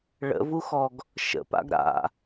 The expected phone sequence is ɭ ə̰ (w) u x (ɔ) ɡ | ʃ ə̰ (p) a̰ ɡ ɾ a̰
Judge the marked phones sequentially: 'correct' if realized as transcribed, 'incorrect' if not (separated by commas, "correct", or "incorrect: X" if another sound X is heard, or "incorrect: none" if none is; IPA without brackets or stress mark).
incorrect: v, correct, correct